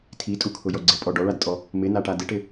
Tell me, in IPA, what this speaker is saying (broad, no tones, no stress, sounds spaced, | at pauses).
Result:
tʰ i tʼ u kʰ ʊ j ɔ ɡ͡ǀ ɪ pʼ ɔ ɖ ɔ ɭ a d tʼ ɔ | m ɪ n a ʈ a d ɪ ʈ ɪ